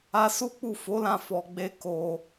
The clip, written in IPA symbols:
a˦ s u˦ k͡p u˦˨ f o˨˦ l ã˧ f ɔ˧ ɡ͡b e˦ k o˧

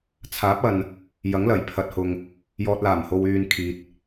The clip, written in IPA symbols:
t͡sʰ aː˨˥ p̚ ɐ˨ n | j ɐ˨˥ ŋ l ɐ˨˩ j pʰ ɐ˨ t̚ h ʊ˨ ŋ | j ɔː˨ t̚ l aː˨˩ m h o˨ w yː˨ n kʰ iː˨ t̚

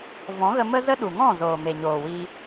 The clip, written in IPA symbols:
v ɔ̃˨˦ ɣ ə˧ m ə˦ z ə˦ ɗ u˨ ŋ ɔ̃˦˨ z oː˨ m e˨ ɲ oː˨ w iː˧

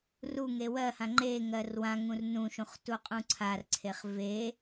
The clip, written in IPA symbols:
r u ŋ e w ɜ h ã ŋ͡ǃ e ŋ ɜ r w ã ŋ ũ r n ũ ʃ ũ χ t u qʼ ũ ǀʰ a r ǀʰ e χ v e

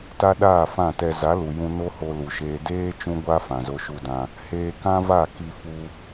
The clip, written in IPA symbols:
t a˦ ɗ aː˦˨ f ã˦˨ t ɛ˧ z a˨˦ l u˨ j ũ˧ n o˦ h o˧ l u˨ ʃ eː˧ d eː˦ t͡ʃ ũ˦ ɡʷ a˦ f ã˨ z o˧ ʃ u˧ d ã˧ | h eː˧ k ã˦ v a˦˨ k i˧ f u˧

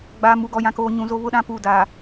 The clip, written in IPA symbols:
ɡ͡b a˨ m u˨ ɡ ɔ˨ j ã˨ k oː˨ ɲ ũ˨ z o˦ β ʊ˦ ɗ ã˦ p uː˨ d a˨

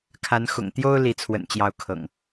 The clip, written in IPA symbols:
kʰ a˨˦ n x ʊ̰˨˩ ŋ t̪ j o˦ ʊ̯ l i˨˦ t͡sʰ w ə̰˨˩ n t͡ɕ j ɑ˨˦ ʊ̯ kʰ ɤ̰˨˩ ŋ

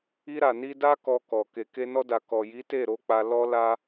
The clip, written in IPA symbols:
i˧ ɾ a˨ n i˧ d a˦ k ɔ˧ k ɔ˨ k e˨ k e˧ n ɔ˧ d a˨ k ɔ˨ j i˨˦ t e˦˨ ɾ o˨˦ k͡p a˧ l ɔ˦ l a˦

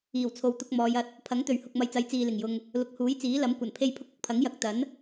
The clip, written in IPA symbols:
iː˨˩ w t͡sʰ o˨˧ w t̪ ʊ˧ k̚ m ɔː˨˧ j ɐ˧ t̚ | pʰ ɐ˨˥ ŋ t̪ ɵ˨˩ ɥ h ʊ˨ k̚ m ɐ˨˧ j t͡s ɐ˨˥ j t͡s iː˨ l ɪ˨˩ ŋ j ʊ˨ ŋ | l ʊ˨ k̚ h uː˨˥ j t͡s iː˨˥ l ɐ˨˥ m kʷ ɐ˨˩ n pʰ e˥ j pʰ ʊ˥ k̚ ʊ˨ k̚ pʰ ɐ˨˥ ŋ j ɐ˨ k̚ t̪ ɐ˨˥ n

